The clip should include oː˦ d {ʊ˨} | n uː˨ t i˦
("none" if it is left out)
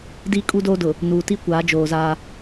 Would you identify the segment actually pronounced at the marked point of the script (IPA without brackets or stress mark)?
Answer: ʊ˨